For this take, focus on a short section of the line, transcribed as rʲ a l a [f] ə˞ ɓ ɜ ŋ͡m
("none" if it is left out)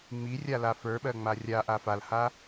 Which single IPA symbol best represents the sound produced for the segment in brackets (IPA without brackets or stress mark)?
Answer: f